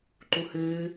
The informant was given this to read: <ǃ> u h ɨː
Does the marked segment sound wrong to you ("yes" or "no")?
no